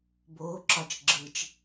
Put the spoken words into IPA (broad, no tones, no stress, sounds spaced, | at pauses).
b oː ǁ ɒ t͡ʃ ɡ͡ǁ ɯ t͡ʃ